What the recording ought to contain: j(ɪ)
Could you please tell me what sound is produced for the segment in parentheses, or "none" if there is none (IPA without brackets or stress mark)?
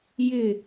ɪ